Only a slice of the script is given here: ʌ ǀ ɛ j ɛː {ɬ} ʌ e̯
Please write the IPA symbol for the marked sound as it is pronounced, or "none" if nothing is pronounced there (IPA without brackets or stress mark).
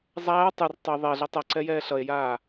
ɬ